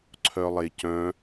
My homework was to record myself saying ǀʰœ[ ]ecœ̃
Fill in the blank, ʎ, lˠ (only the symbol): lˠ